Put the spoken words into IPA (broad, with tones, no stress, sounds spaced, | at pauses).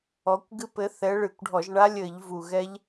ɔ˨˦ kʷ ɡ ɨ˦˥ p ɘ˨˦ θ ɛ˨˦ ɭ ɨ˧˩˧ kʷ ɖʱ ɔ˧˩˧ ʒ ɳ a˦˥ lʲ ɘ˧˩˧ ʎ v u˨˩ ɣ ɛ˦˥ ʎ